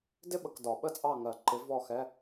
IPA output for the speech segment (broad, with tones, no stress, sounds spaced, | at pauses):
d ɪ˥ ɓ ə˨ k d ɒ˨˩˦ ɓ ə˥˨ t͡sʼ ɑ˥˨ ŋ ɜ˨˩˦ ǃ ɪ˨˥ v ɔ˥˨ x ɛ˧˥˧